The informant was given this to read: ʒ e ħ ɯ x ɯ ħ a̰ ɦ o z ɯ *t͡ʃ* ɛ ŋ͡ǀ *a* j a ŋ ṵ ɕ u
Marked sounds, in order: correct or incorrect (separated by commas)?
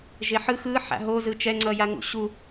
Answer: correct, incorrect